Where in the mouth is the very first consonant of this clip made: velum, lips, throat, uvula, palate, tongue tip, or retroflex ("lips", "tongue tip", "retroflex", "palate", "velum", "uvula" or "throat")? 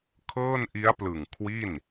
velum